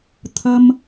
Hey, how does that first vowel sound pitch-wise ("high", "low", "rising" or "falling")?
high